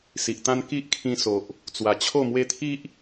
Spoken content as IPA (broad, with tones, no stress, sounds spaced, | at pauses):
s i˨ ʔ t̪ ã˦ n k i˦ ʔ kʰ ĩ˧ s o˨ ʔ | t͡s w a˨˩ t͡ɕʰ o˥˧ m w e˦ t̪ʰ i˦ ʔ